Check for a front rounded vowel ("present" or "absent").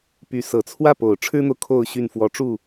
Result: present